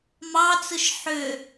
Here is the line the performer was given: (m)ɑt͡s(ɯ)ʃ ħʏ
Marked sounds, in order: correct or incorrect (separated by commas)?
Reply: correct, correct